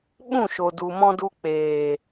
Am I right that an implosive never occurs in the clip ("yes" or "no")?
no